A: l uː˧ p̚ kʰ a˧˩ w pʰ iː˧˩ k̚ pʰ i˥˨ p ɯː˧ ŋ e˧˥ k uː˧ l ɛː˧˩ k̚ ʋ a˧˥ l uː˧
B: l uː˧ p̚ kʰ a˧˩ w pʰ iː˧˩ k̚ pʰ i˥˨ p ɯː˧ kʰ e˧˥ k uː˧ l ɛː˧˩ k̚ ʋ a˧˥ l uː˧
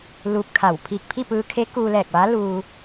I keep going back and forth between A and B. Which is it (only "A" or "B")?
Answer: B